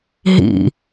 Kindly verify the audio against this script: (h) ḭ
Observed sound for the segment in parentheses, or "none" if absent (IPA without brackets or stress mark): ɦ